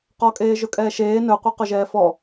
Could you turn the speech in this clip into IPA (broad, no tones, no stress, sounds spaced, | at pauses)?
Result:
q ɔ kʼ eː ʒ ɵ kʼ ɛː ʃ eː n ɵ qʷ ɛ q ɵ ʒ ɛː f ɔ